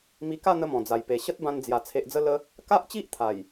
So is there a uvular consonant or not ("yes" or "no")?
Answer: no